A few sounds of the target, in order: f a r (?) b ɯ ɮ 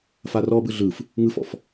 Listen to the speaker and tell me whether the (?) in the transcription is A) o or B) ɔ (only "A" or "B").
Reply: B